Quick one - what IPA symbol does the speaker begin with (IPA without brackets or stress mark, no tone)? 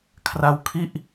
kʰ